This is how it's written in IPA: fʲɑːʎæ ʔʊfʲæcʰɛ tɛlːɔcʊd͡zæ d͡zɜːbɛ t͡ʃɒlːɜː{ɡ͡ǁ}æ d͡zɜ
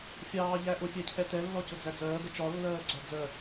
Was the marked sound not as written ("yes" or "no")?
yes